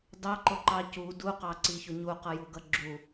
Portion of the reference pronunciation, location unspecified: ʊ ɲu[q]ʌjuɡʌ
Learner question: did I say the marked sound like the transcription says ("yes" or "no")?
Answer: yes